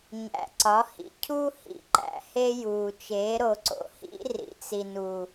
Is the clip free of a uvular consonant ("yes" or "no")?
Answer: yes